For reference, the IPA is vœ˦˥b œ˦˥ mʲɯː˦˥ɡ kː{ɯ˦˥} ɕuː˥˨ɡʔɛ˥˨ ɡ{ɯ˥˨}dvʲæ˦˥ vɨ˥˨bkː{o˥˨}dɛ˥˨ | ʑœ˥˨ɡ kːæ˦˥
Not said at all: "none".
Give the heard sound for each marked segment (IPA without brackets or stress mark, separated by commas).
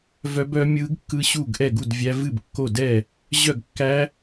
ɯ˦˥, u˥˨, o˥˨